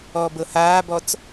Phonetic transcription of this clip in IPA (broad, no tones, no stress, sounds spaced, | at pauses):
ɔː b ɤ h aː b ɔ t͡s